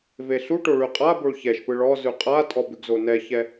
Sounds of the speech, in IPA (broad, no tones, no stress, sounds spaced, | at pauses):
v e ɬ u ʈ o ɭ ʉ qʼ a b o ɭ ç ɛ ʃ p ɯ ɭ ɔ z ʉ qʼ a tʼ ɔ b ʉ ɡ z o n ɛ ç ɛ